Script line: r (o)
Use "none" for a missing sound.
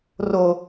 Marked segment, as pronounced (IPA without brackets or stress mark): o